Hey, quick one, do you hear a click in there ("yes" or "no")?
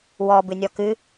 no